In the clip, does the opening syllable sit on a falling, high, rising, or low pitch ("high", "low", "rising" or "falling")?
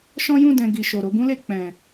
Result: high